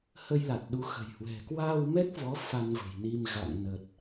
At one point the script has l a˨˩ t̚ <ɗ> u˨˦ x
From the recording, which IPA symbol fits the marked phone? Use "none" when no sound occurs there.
ɗ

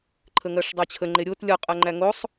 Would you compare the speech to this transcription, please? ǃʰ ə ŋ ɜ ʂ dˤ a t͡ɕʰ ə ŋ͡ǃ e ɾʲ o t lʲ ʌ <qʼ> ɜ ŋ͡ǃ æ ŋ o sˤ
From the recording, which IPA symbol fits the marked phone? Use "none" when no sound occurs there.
qʼ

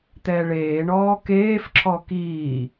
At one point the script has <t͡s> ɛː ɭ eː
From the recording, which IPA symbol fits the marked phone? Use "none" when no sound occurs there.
t̪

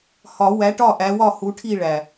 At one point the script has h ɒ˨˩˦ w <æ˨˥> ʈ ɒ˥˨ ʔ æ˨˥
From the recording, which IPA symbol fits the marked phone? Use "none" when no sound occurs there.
æ˨˥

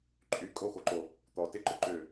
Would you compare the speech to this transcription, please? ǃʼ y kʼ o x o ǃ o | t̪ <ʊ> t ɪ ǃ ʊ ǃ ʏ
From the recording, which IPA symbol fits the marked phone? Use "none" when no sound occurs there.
ɔ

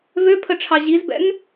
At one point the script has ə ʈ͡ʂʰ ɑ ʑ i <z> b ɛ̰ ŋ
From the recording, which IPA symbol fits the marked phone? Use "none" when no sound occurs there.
z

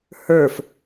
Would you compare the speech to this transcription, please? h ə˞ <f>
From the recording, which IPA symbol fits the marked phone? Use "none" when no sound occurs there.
f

